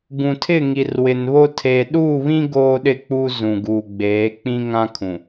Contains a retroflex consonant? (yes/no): no